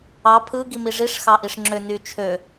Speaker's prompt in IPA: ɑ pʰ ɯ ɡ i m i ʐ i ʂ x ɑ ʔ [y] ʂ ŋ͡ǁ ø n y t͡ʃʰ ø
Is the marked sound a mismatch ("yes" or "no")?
yes